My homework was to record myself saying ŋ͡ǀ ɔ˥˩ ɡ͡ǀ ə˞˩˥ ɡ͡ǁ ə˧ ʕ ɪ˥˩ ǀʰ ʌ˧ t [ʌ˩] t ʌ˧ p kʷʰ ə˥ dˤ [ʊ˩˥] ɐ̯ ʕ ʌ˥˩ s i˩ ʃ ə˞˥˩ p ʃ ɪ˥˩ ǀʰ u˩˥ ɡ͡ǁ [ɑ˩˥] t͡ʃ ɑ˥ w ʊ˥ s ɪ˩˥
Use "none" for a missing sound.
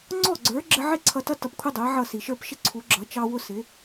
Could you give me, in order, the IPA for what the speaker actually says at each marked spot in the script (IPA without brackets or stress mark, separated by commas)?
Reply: ʌ˥, ʊ˩˥, ʌ˩˥